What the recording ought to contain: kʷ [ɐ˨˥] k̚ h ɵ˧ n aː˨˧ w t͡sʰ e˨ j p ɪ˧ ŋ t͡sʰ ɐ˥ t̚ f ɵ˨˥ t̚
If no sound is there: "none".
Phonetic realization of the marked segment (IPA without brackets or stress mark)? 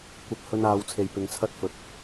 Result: ɐ˧